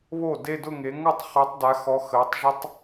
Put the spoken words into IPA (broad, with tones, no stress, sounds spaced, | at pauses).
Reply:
β o˥˩ d e˥˧ d ʊ˥˧ ŋ e˨˦ ŋ ʊ˥˩ tˤ χ œ˨˦ tˤ d a˨˦ x ɔ˨˦ x əː˨˦ tˤ ʒ ə˦˥ tˤ